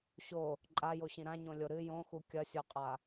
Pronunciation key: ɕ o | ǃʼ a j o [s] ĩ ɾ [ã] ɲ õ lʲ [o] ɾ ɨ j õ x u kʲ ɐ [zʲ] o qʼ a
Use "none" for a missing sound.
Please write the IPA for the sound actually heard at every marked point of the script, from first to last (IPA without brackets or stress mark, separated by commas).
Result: ɕ, ã, o, sʲ